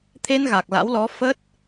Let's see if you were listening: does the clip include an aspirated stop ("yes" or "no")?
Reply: yes